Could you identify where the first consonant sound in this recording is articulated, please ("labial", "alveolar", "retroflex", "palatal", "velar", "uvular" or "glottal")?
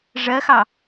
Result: retroflex